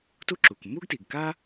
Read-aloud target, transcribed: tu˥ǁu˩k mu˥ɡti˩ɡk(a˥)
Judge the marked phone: correct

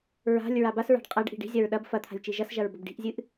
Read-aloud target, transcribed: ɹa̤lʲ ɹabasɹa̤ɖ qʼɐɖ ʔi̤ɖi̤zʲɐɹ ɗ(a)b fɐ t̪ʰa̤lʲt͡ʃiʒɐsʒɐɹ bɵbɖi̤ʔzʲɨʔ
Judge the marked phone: incorrect: ɐ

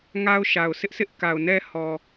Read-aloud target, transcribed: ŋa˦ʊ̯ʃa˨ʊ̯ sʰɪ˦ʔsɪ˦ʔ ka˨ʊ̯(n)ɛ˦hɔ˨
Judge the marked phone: correct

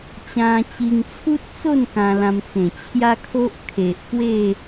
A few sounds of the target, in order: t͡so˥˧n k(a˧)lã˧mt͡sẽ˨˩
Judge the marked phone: incorrect: ã˧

